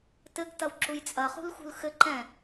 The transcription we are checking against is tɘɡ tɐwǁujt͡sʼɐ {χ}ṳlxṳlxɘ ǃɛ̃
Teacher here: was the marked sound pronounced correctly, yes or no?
yes